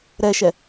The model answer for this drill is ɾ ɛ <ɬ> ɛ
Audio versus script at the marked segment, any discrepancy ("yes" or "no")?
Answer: yes